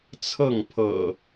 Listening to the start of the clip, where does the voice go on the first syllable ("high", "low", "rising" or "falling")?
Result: falling